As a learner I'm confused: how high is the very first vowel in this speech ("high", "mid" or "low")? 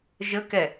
mid